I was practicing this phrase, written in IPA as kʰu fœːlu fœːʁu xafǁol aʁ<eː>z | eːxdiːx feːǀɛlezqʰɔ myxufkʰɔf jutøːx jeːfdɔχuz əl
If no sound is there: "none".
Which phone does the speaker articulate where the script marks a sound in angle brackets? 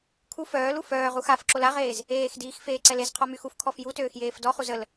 eː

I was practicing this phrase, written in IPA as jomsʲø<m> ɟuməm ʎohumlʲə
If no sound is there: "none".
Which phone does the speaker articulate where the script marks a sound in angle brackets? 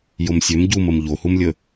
m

